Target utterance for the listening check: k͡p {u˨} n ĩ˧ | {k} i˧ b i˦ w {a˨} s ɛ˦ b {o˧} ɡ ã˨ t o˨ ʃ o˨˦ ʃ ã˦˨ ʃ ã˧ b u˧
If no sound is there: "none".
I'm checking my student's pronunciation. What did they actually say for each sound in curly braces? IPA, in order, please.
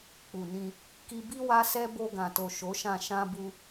u˨, k, a˦, o˧

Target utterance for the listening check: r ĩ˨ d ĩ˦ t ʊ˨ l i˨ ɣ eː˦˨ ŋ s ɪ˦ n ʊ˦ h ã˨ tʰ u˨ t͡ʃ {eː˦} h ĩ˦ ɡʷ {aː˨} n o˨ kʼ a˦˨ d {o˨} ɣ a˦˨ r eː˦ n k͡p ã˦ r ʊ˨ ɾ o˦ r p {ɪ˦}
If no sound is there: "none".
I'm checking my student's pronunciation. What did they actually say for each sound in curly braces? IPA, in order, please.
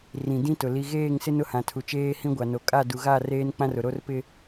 eː˦, a˨, u˨, ɪ˦

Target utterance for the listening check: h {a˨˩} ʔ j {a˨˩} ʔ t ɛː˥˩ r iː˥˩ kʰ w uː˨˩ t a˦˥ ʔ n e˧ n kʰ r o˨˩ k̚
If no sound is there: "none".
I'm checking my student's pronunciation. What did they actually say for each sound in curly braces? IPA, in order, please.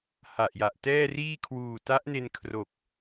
a˨˩, a˨˩

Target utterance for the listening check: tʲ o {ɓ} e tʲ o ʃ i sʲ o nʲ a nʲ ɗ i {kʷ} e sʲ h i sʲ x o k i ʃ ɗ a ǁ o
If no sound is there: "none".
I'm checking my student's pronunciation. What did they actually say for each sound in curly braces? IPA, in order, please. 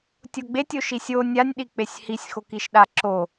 ɡ͡b, k͡p

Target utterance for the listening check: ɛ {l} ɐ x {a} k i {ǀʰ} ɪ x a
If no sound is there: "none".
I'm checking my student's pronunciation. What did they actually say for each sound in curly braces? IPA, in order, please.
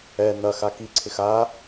n, a, ǀʰ

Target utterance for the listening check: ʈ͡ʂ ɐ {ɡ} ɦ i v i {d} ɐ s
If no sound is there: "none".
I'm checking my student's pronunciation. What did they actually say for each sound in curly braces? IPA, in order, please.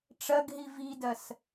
ɡ, d

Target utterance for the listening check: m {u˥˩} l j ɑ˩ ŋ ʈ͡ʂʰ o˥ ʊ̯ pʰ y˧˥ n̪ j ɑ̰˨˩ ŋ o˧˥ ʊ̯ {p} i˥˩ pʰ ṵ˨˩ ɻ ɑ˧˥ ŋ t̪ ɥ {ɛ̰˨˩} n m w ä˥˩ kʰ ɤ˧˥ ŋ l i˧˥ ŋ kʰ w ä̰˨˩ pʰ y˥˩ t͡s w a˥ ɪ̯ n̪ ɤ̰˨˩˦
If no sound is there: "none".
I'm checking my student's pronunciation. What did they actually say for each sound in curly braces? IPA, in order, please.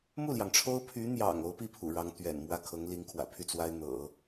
u˥˩, p, ɛ̰˨˩

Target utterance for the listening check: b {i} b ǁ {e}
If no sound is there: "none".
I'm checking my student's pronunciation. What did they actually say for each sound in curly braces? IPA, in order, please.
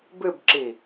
ɨ, i

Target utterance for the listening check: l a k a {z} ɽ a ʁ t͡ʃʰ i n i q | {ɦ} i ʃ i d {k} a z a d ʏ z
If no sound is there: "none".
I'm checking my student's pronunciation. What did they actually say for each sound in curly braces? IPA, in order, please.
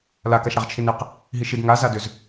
ʃ, ɦ, ŋ

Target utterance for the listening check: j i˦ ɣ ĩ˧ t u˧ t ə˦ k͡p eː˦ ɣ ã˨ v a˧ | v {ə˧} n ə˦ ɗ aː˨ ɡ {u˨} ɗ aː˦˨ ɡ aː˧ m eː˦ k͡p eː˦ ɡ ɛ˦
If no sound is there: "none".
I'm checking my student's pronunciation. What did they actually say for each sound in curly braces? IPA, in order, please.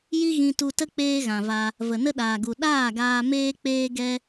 ə˨, u˨

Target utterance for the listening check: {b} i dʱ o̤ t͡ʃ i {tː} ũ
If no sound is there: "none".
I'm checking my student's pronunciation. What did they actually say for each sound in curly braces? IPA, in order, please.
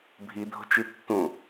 bʱ, tː

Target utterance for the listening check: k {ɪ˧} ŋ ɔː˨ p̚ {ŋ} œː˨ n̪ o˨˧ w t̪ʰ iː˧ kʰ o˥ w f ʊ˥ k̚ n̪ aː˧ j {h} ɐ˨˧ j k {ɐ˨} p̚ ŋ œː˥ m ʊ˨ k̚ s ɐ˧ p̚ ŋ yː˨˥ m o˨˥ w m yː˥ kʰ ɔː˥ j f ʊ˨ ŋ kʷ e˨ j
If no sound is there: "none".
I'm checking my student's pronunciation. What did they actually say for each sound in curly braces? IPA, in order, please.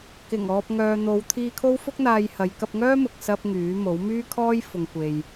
ɪ˨˩, ŋ, h, ɐ˧

